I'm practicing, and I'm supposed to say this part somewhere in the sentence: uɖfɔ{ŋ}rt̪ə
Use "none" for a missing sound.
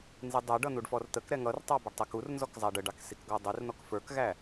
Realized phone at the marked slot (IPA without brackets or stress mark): none